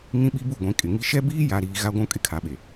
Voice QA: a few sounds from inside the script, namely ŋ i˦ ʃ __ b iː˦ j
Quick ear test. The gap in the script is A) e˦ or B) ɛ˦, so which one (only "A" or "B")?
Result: B